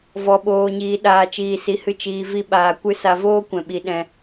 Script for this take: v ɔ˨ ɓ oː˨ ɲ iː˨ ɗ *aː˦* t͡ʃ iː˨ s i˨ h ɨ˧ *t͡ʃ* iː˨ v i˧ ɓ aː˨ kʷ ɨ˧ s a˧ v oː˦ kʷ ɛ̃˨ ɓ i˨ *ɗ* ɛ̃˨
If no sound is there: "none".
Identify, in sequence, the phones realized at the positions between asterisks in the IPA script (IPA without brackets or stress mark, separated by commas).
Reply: aː˨, t͡ʃ, ɗ